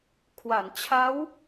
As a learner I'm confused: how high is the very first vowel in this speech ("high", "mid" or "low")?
low